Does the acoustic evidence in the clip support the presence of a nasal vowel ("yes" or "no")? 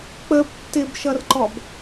no